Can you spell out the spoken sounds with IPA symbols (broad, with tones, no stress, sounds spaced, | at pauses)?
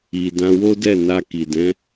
i˨ d ã˧ w o˦ d ɛ˦˨ n a˧ k i˨ d ɛ̃˨˦